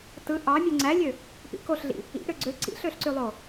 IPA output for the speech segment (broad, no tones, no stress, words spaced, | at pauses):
tɯ ʔɑ mʲuŋ͡ǀælʲø | pḭkoɬɮḭ | ḭ ɾøɡ͡ǀø ǀḭɬøɬǀylˠo